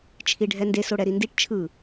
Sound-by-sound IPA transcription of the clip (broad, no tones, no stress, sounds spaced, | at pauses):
t͡ʃʰ i ɖʱ ɛ n d e s o ɽ ɛ ɾ i n d i ʈ t͡ʃʰ ɯ